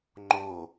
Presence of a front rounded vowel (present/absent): absent